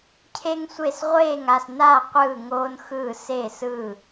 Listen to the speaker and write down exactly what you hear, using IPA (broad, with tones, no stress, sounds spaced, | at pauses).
cʰ e˥ ŋ sʷ e˥˨ s ʁʷ eː˥˨ ŋ a˥˨ s n aː˥˨ qʷ ɯː˥˨ ŋ oː˥ n x ɯː˥˨ s e˥˨ s ɯː˥˨